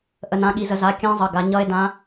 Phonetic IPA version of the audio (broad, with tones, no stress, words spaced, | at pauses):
ʔə˩˧nã˩˧˩ɠi˩˧zə˩˧ za˩˧˩ kʲã˧˥zˤə˩˧˩ɡa˩˧ ɲʌ˧˥e̯ dã˧˥